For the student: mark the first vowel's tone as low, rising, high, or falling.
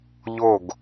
falling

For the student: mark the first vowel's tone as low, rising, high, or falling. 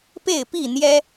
falling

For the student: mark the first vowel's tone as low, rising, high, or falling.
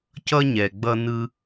high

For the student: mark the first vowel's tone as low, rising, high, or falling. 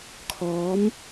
rising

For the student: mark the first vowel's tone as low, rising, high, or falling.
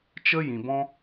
high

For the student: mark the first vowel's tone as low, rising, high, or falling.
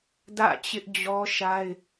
falling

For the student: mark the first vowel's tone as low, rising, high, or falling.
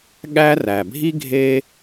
high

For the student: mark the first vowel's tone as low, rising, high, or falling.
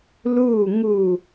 falling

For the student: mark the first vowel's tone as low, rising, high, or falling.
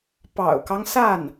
low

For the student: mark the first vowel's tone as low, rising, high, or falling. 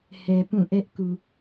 low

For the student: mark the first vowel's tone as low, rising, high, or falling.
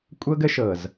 high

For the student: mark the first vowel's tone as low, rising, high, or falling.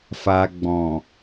low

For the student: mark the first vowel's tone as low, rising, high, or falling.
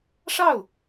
falling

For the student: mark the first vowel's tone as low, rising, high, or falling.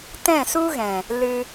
falling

